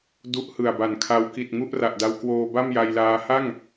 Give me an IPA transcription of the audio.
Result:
d u˦˥ ʔ h ɯ˨˩ a̯ b a˨˩ n kʰ a˦˥ w k i˨˩ t̚ ŋ u˥˩ ʔ r a˨˩ ʔ d a˧ w k w oː˧ b a˥˩ m j a˧ j l aː˦˥ h a˥˩ ŋ

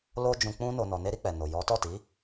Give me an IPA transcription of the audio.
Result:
l o˦ d͡ʒ ũ˧ k͡p ũ˦ n o˧ n ɔ˧ n e˦ ɾ i˧ k͡p ɛ˨ n o˨ j ɔ˨˦ t ɔ˦˨ t i˨˦

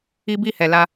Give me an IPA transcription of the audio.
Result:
i˦ b i˦˨ h ɛ˨ l a˧

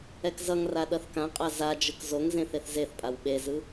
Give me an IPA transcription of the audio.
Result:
ɛ k z ʌ ŋ r a ɗ ʌ θ k ã qʼ a z a d͡ʒ ɯ k z o ŋ z ẽ θ e θ z e θ pʼ a w ɓ e z ɯ

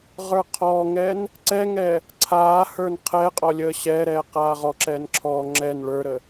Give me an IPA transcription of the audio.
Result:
ʁ ə˞ qʰ ɔː ŋ ɛː n | ǀ ɛ ŋ ɛ | ǀʰ aː h ə˞ n qʰ ɛ qʼ ɔ lʲ əː ɕ ɛ ɾ ɛː q aː ʁ ɔ ǁ ɛ n ǁʰ ɔ ŋ͡ǁ ɛ n ɭ ə˞ ɾ ə

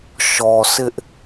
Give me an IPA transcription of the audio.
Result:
ʃ ɔ˨ s ɪ˦ ʔ

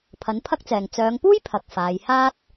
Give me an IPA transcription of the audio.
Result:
pʰ ɐ˨˥ n pʰ ɐ˥ k̚ t͡s ɛː˨ ŋ t͡s œː˨˧ ŋ p uː˥ j pʰ ɐ˨ k̚ f aː˨˧ j h aː˥ t̚

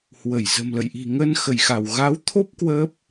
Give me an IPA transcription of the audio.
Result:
h w ə˧˩ j z ə̤˨˩ m l ə̰˧˨ j ʔ i̤˨˩ ŋ ə˧ n x ə˧˩ j x a˧˩ w ɣ a˨˦ w t̪ʰ o˦˥ p̚ k w əː˦˥ p̚

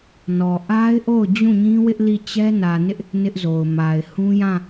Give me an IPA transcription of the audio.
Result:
n ɔ˨ ʔ a˦ ɪ̯ ʔ o˦˨ ʊ̯ d͡ʑ ũ˦˨ ɲ ĩ˦ w ɪ˦ ʔ l i˦˨ t͡ɕ ɛ˦ n ä˨ n ɪ˦ ʔ | n ɪ˦ ʔ z o˨ ʊ̯ m a˨ ɪ̯ h ũ˦ j ã˦˨

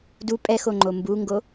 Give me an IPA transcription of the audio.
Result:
d u pʼ ɛ x o ŋ͡ǃ o m b u ŋ ɡ o

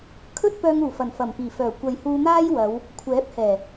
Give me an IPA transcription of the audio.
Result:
kʰ ɵ˥ t̚ p œː˧ ŋ uː˨˩ f ɐ˨˩ n f ɐ˨˩ m p iː˨˩ f œː˨˩ kʷ ɐ˨ j h uː˧ n̪ aː˥ j w ɐ˨˧ w | kʷʰ ɛː˨˥ p̚ h ɛː˨˩

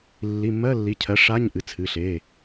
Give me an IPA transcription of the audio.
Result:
lː i˩˧˩ mː ɜ˧˥˧ lː i˩˧˩ cʰ ɜ˩˥ ʂ a˧˥˧ ɲ ʔ ɨ˩˧˩ t͡sʰ ɨ˩˧˩ ɬ e˩˧˩

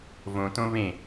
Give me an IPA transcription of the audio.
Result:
v õ t õ β ẽ

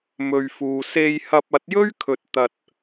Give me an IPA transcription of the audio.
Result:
m ɵ˨ ɥ f uː˨ s e˧ j h ɐ˧ p̚ ɐ˨˥ t̚ j ɵ˥ ɥ kʰ ɵ˨ t̚ t̪ ɐ˨ t̚

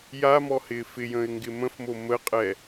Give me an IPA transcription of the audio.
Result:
j a m ɔ h ɪː f ɪ j ə̃ː ɪ̯ ŋ ɡ ɪ m ə̃ f m o m ə qʼ ɛ

